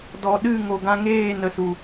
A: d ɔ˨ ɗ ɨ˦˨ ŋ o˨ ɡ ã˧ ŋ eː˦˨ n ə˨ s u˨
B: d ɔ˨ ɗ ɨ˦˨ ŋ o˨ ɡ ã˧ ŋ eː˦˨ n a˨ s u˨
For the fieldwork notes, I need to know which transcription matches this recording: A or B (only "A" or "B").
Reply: A